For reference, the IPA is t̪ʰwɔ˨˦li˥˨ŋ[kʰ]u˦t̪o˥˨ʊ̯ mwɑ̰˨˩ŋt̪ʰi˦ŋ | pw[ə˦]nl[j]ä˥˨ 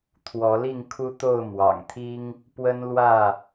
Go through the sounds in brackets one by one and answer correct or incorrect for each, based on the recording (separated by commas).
correct, correct, incorrect